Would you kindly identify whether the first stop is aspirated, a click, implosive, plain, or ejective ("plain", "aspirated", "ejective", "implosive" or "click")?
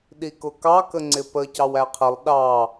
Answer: implosive